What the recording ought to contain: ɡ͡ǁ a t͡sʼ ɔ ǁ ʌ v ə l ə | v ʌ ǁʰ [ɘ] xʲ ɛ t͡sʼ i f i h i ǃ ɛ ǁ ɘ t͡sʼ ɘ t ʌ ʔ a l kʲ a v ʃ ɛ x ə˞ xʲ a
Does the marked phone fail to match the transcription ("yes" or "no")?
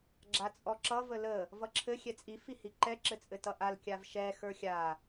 no